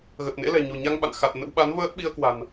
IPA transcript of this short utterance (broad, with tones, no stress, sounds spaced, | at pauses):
ɣ ə˨˩ t̚ n ḛ˧˥ l ɛ̤˨˩ ɲ o̤˨˩ ɲ a˧ ŋ ɓ a̰˧˨ n x a˨˩ t̚ n ə̰˧˥ w ɓ a˨˦ n v əː˦˥ t̚ ɓ i˧ ə̯ k w a̤˨˩ n